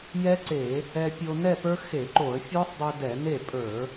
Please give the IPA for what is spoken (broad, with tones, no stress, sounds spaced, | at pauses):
j ɛ˦˥ ǀ e˧˩˧ | ɛ˧ pʲ o˧ n ɛ˥˧ p ə˞˦˥ x e˧˩˧ ǃ o˧˩˧ ə̯ fʲ ɔ˦˥ sˤ dˤ e˧ d ɛ˧˩˧ n e˥˩ pʼ ə˞˧˩˧